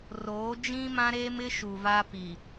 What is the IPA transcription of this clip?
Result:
roː˨˦d͡ʒĩ˦mã˦ɾeː˦m ɪ˦ ʃu˨va˦pi˨

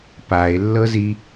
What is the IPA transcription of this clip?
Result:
pae̯lːɤzi

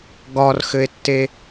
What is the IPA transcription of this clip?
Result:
ɡɒrxɘe̯tːe

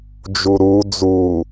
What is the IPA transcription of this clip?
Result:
d͡ʒuɾu d͡zu

